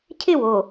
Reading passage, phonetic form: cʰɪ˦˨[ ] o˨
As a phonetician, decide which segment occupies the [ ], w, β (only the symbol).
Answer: w